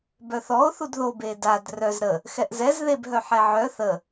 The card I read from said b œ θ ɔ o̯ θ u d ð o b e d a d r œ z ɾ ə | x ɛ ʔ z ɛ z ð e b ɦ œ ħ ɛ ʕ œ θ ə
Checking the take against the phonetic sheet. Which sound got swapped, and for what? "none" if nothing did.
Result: none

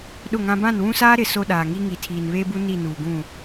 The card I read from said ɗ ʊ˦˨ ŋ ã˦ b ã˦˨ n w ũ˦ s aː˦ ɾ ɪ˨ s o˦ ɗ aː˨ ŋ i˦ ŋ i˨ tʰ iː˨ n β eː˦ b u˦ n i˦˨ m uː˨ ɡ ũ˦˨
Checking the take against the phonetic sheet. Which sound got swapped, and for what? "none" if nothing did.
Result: m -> n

